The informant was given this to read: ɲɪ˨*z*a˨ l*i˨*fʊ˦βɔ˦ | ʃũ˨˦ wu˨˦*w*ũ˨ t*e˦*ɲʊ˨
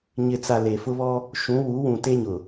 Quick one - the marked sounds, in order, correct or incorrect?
incorrect, incorrect, correct, correct

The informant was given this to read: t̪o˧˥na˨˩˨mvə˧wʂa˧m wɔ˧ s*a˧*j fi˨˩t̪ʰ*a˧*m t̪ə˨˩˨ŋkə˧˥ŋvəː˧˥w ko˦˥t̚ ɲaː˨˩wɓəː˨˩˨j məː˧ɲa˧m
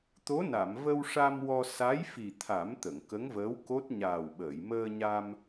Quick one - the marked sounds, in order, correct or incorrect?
incorrect, incorrect

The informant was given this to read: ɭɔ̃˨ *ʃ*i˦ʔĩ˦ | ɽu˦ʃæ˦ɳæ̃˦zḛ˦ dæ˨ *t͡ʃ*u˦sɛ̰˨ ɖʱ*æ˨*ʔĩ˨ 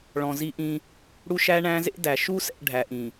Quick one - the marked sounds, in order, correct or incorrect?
incorrect, incorrect, correct

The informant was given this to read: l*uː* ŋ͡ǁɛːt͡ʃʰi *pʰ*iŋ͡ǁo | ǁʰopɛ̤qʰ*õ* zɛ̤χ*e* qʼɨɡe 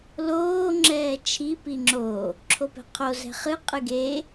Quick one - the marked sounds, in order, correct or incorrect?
incorrect, incorrect, incorrect, incorrect

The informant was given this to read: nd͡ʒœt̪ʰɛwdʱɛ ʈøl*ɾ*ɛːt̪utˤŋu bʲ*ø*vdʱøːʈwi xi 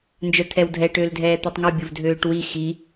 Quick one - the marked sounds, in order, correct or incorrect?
incorrect, incorrect

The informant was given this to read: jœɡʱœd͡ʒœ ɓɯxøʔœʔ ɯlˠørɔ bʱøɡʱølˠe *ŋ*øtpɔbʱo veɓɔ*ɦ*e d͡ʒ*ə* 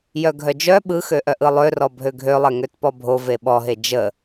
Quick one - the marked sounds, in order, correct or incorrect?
correct, correct, correct

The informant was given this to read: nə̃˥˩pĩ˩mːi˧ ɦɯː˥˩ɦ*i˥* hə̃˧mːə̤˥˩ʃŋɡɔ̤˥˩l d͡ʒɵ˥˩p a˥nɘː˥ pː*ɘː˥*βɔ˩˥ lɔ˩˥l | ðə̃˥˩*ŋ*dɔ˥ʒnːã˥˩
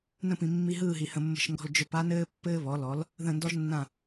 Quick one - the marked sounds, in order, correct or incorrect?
incorrect, correct, incorrect

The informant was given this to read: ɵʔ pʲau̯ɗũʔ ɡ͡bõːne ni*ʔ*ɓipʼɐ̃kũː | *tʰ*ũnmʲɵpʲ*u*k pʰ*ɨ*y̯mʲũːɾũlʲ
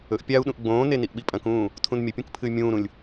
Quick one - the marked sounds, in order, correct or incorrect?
correct, correct, incorrect, correct

